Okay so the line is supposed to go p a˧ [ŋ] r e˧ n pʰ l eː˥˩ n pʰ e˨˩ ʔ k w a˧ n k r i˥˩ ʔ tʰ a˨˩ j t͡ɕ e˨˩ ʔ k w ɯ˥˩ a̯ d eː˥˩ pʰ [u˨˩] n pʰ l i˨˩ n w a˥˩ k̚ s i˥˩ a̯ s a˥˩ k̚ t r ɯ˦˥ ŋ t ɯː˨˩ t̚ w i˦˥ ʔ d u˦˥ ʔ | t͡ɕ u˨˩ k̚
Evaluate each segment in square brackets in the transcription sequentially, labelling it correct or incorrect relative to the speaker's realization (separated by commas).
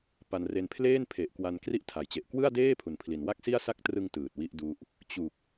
incorrect, correct